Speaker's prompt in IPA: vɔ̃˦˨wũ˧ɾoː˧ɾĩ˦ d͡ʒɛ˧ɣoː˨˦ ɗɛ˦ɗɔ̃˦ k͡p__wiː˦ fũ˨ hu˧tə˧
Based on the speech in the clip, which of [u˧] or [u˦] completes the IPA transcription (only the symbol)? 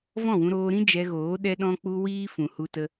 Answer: u˦